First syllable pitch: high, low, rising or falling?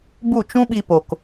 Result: falling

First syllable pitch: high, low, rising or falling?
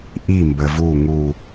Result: falling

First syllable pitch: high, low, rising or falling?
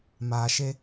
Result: low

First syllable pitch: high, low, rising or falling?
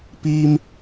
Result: high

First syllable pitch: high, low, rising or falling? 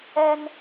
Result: high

